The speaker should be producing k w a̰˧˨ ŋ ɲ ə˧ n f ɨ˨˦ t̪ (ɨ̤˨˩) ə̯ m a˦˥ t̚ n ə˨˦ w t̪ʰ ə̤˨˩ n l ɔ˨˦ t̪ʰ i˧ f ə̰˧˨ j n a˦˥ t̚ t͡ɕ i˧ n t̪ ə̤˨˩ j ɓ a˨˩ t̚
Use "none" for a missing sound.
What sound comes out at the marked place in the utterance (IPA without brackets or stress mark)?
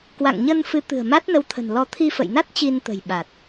ɨ̤˨˩